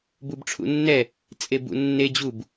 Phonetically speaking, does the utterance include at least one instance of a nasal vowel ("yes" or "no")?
no